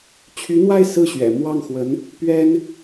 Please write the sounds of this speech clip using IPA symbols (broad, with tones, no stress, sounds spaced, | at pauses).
t͡ɕʰ y˧˥ n̪ w a˥˧ ɪ̯ s ɹ̩˥˩ ɕ ɥ ɛ̰˨˩ m w ɑ˥˩ ŋ x w ə˧˥ n | p ɥ ɛ˥ n